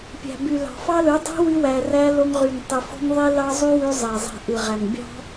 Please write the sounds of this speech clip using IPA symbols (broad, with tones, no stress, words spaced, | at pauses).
pʲæ̤˨by˨lɑ̤˨ fɑ˦lɯ˨˦ dˤi̤˦ wy˧wæ˨ræ˧ lo˧ŋʁy˨ŋtˤɯ˨fo̤˦ŋ ðˤi˦ lɑ˦zˤy˦wy˧ zˤæ˨zˤi̤˨ʔɯ˨ʁæ˨ŋ bʲɑ̤˦